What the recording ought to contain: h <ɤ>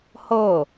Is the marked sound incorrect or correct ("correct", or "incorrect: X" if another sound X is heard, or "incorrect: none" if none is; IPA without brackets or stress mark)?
correct